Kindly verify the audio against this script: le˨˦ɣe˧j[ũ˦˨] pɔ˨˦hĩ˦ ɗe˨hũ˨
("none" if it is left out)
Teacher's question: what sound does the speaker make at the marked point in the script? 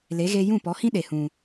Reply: ũ˦˨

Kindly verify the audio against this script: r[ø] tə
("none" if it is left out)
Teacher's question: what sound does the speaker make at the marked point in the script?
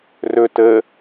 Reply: ɵ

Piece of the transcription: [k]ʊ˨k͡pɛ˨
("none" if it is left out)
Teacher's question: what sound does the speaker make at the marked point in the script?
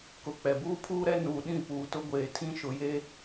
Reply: k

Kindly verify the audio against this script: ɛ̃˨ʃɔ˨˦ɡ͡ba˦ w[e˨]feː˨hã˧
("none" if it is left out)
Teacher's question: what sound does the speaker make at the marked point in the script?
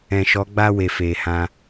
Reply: e˨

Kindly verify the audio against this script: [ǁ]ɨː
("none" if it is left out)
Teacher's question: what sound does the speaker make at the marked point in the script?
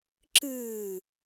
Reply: ǁ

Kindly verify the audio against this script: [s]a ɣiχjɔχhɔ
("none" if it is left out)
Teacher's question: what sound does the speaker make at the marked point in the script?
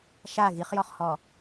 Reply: ʃ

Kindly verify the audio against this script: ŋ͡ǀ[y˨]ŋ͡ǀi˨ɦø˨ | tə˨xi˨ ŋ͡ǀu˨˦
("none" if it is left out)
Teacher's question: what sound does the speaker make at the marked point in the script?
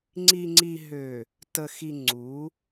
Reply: i˨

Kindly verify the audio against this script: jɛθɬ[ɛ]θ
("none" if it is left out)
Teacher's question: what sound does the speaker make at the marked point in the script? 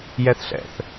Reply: ɛ̰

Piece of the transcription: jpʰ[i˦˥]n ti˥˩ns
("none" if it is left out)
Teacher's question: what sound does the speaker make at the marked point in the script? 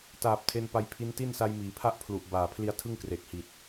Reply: i˦˥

